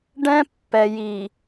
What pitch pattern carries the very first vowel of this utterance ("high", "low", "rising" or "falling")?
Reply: high